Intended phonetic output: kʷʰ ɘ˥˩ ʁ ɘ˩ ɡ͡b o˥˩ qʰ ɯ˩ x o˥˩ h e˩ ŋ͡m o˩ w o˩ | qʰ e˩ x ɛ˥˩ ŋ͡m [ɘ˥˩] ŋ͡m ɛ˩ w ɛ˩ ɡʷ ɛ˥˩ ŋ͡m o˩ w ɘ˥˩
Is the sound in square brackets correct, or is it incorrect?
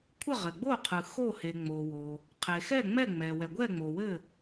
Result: incorrect